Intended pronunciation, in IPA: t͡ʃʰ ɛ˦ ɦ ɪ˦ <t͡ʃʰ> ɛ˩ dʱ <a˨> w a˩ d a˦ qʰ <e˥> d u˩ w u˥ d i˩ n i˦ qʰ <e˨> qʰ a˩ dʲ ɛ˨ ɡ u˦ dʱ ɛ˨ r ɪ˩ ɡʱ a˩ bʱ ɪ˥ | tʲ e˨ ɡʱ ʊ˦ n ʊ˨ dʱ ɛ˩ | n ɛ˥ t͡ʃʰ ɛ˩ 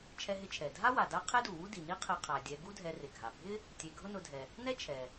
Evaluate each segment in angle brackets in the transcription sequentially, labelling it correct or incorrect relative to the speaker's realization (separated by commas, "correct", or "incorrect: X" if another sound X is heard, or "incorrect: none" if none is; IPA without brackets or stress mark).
correct, incorrect: a˥, correct, correct